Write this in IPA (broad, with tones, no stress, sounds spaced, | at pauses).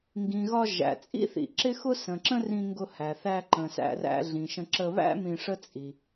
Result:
ŋ ɡ ĩ˩ ɣ ɒ˧ ʒ æ̰˩ t͡sʼ ḭ˥ θ ḭ˩ ǁ ɪ˥ x ʊ˥ s ə̃˩ ǁ ə̃˥ r ĩ˧ ŋ ɡ ʊ˧ h æ˩ θ æ˧ ǃ ə̃˩ s æ̰˧ r æ̰˧ ɮ ĩ˩ ʃ ə̃˧ ǁ ə˧ β æ̰˥ m ĩ˧ ʂ ə˥ t͡sʼ i˩